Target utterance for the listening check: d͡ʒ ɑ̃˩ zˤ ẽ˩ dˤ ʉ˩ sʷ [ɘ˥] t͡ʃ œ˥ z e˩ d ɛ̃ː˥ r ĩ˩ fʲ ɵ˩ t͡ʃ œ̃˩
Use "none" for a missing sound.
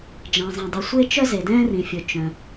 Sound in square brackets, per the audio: e˥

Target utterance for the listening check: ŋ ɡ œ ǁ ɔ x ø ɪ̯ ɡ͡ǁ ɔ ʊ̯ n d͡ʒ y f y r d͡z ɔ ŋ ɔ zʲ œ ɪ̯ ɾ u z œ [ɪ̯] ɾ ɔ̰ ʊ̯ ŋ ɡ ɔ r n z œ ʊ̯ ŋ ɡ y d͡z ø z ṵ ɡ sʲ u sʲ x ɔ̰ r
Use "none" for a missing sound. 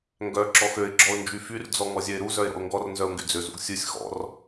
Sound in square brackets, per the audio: ɪ̯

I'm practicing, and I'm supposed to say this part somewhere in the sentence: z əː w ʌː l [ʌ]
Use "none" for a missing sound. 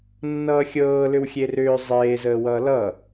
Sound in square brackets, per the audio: ʌ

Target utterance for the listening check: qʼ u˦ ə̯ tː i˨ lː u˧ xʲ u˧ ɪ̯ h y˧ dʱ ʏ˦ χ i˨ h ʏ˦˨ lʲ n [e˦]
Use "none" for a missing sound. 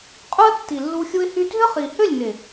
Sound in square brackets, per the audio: e˨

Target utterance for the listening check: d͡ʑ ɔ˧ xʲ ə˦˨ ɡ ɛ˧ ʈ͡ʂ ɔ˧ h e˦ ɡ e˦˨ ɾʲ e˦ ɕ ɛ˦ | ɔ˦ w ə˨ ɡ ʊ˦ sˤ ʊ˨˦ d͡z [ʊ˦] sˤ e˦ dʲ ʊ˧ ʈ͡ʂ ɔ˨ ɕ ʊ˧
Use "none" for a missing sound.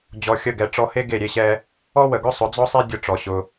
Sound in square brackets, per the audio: ɔ˦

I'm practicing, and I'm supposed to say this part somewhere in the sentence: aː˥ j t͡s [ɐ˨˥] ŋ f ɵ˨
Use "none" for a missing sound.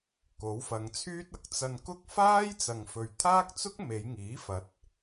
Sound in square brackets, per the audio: ɐ˨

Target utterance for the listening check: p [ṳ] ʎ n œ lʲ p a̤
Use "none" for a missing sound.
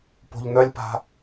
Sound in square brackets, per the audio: o̤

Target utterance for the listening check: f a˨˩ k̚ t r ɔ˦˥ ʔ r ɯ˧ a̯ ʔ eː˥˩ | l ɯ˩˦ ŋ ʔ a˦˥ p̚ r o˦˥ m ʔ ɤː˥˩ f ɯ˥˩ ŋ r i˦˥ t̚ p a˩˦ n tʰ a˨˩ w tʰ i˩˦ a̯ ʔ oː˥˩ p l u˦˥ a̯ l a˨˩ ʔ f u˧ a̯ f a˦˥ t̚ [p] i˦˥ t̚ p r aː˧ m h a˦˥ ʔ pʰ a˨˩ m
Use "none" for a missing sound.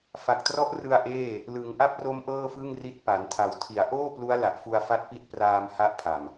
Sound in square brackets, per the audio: p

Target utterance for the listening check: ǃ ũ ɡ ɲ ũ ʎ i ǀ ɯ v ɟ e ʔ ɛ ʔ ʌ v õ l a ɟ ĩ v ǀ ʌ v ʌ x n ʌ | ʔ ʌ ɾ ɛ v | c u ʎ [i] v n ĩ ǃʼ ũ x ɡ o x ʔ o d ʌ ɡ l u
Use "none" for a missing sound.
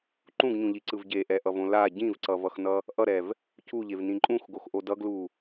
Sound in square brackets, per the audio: e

